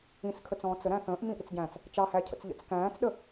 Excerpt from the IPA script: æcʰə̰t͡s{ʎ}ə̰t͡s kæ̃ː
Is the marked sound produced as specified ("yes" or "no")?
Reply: yes